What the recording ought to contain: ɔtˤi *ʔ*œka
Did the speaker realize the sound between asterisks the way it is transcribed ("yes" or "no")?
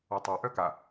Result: yes